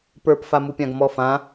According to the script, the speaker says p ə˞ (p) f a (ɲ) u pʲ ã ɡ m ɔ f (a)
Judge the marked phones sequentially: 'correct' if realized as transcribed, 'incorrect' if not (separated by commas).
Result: correct, incorrect, incorrect